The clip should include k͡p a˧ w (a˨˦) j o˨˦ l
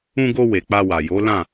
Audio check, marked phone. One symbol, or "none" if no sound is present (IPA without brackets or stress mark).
a˨